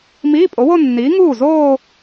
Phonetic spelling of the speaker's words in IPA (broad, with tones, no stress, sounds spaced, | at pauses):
m iː˧˥˧ pʼ o˨˥ w o˥˧ nː iː˨˥ ŋ uː˥˩ z oː˥˧